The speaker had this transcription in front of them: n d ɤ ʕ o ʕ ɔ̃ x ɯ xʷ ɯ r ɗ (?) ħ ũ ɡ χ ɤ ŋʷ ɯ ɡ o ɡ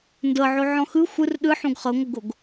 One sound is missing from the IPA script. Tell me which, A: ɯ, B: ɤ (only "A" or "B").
A